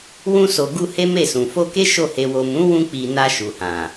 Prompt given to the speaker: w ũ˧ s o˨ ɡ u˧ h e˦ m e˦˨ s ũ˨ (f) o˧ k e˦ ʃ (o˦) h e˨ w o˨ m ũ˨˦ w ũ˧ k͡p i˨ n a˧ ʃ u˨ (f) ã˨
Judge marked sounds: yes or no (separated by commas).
yes, no, no